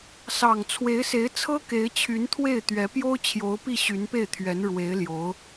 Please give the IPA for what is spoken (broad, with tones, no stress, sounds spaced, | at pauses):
s ɑ˨˩ ŋ t͡sʰ w e˧˥ ɪ̯ s e˧˥ ɪ̯ t͡sʰ ɤ˥ k e˧˥ ɪ̯ t͡ɕʰ y˧˥ n t̪ʰ w e˥˩ ɪ̯ t̪ ɥ ɛ˧˥ p j o˥ ʊ̯ t͡ɕʰ j o˧˥ ʊ̯ p i˥˩ ɕ y˧˥ n p e˥˩ ɪ̯ t̪ʰ ɥ ɛ˧˥ n ɻ w e˧˥ ɪ̯ l j o˧˥ ʊ̯